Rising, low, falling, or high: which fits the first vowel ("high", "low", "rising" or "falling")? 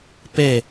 falling